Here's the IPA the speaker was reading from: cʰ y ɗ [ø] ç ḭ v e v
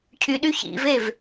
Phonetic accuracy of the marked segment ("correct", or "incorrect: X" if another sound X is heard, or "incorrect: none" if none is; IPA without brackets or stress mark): incorrect: y